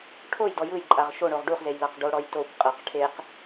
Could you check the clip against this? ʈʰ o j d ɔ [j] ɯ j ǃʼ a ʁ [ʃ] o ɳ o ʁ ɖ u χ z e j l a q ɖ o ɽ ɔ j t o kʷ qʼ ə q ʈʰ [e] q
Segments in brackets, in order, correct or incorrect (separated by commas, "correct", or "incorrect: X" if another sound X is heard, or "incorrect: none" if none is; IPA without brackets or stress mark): correct, correct, correct